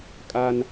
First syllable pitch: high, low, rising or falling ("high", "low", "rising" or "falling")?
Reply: high